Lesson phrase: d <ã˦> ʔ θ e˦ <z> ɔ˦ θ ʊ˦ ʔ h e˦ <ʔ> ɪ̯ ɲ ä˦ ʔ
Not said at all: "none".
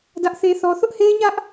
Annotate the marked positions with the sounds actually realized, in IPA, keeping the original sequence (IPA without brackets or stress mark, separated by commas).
ä˦, θ, none